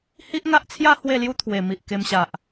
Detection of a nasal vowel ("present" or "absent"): absent